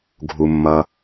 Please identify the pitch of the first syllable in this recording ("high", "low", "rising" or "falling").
low